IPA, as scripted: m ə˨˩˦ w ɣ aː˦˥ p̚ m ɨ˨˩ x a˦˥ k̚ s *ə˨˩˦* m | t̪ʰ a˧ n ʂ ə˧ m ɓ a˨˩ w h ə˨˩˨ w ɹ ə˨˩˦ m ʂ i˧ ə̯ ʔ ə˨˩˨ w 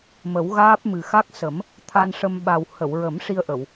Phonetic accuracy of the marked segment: correct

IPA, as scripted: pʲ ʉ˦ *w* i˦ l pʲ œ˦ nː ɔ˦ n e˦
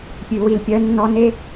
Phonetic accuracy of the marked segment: correct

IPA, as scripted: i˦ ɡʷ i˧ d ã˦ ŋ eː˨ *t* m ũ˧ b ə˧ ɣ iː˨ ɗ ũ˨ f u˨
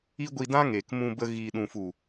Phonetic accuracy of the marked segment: incorrect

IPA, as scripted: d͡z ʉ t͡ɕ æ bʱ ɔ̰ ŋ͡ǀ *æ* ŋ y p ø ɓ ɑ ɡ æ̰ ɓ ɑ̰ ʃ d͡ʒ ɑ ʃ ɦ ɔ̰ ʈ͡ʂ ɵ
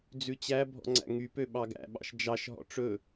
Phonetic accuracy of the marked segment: incorrect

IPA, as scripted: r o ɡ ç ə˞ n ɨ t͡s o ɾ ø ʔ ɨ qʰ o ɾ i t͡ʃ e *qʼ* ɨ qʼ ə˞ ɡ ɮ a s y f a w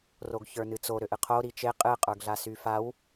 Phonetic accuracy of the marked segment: correct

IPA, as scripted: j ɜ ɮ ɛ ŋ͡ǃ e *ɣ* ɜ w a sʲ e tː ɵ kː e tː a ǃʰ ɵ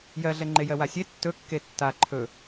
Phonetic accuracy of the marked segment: incorrect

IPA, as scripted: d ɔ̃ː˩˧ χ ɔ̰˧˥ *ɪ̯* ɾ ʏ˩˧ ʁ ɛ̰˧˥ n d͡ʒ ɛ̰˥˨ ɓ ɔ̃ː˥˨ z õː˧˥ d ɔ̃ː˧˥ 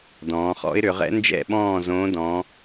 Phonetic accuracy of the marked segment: correct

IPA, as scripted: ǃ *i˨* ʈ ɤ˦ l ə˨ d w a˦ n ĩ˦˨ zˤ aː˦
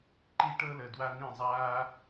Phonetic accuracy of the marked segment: incorrect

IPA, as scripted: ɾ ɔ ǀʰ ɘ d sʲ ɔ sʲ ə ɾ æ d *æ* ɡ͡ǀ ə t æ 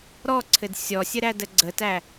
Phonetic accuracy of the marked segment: incorrect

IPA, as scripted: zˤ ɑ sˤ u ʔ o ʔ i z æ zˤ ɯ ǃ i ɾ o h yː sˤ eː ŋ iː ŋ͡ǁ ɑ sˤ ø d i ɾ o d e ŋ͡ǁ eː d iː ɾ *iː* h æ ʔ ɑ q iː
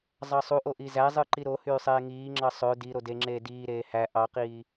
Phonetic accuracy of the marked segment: incorrect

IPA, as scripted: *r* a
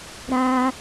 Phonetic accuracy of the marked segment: incorrect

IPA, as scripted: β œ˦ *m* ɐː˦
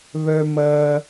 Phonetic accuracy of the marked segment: correct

